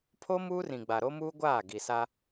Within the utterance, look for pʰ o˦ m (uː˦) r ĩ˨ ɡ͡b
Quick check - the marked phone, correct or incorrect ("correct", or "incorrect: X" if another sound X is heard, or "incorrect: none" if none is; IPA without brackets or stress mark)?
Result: correct